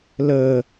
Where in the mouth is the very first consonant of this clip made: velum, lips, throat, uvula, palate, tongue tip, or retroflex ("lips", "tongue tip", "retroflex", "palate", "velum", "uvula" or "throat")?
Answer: tongue tip